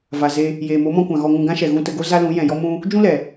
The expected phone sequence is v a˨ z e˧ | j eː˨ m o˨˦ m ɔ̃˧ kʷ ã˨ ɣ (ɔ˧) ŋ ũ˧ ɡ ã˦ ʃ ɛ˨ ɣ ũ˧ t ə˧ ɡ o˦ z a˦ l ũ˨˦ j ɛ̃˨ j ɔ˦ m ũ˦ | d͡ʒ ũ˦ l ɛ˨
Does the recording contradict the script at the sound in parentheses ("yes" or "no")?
no